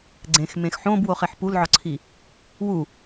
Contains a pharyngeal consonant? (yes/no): yes